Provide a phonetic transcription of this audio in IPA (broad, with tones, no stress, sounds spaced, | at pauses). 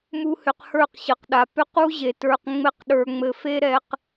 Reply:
m u˦ h ʏ˧ q h ə˞˦˨ q ɕ ə˨ q ɗ a˨ p ʏ˧ q u˦ ʑ e˨ t ə˞˧ q ŋ͡m ɘ˦ q ɗ ə˞˧ ŋ͡m ɘ˧ f e˦ ɾ ɛ˧ q